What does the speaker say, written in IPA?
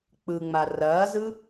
k͡p ɯ ŋ͡m a r ɐː z ɯ

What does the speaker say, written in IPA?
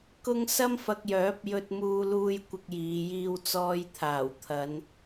k ʊ˥ ŋ s ɐ˥ m f ɐ˧ k̚ j œː˨˥ p̚ j ɵ˧ t̚ m uː˧ l uː˧ j kʷ ɪ˧ k̚ j iː˨˧ j iː˧ w t͡s ɔː˧ j t̪ʰ aː˨˩ w t̪ʰ ɐ˨˧ n

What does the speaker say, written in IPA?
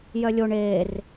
j œ lʲ o ɳ eː r

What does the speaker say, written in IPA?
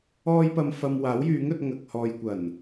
ɔː˧ j p ɐ˨ m f ɐ˨ m w aː˨˥ w j yː˨˥ ŋ ɵ˧ t̚ ŋ ɐ˨ k̚ h ɔː˨ j kʷ ɐ˨˩ n

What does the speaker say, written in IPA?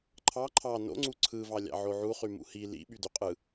ǃʰ ɑ ǃʰ ɑ n o̰ ŋ͡ǀ u ǀʰ ɯ v ɑ lʲ ɑ̰ ʕ o ʕ u χ y m ṵ h i l ḭ ɓ y d y qʼ ɯ

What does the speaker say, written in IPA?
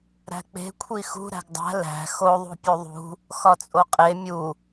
ɾ æ̤ k͡p e̤ kʷʰ i x ṳ ɾ æ̤ ɡ dˤ æ̤ l æ̤ x o ðˤ ṳ pʲ u ðˤ ṳ | x ɒ t͡sʼ o qʼ e mʲ u

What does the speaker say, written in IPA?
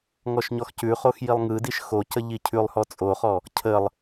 ŋ ɔ ʃ ɲ ɔ x c ʉ χ o x j i lˠ ŋ ɯ d i ʃ x o c ə ʎ i cʰ ʉ lˠ h ɔ t͡sʼ o χ ɔ | cʰ ə lˠ

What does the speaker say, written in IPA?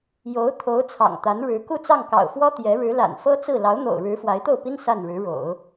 j o˧˥ ʊ̯ t̪ʰ o˧˥ ʊ̯ t͡sʰ ɑ̰˨˩ ŋ t̪ a˧˥ n ɻ ɻ̩˧˥ k u˥˧ t͡s ɑ˥˩ ŋ k ɑ̰˨˩ ʊ̯ f w ɔ˥ t̪ j ɛ˧˥ ɻ ɻ̩˧˥ l a̰˨˩ n f ɤ˥ t͡s ɹ̩˥˩ l ɑ˧˥ ʊ̯ n̪ o̰˨˩ ʊ̯ ɻ ɻ̩˧˥ f w a˧˥ ɪ̯ t̪ o˥˩ ʊ̯ p i˥ n s a˥˩ n ɻ ɻ̩˧˥ ɻ o̰˨˩˦ ʊ̯

